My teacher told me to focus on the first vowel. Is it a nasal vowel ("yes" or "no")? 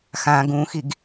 yes